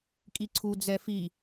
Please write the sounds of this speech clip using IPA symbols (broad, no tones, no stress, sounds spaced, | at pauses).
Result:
kʼ i ǀʰ u d͡z ɛ f i